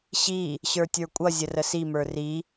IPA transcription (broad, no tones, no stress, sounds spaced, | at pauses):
ɕ i | ɕ ə˞ tʲ ə˞ kʷʼ ʌ zʲ ə r ə s i m ə˞ r i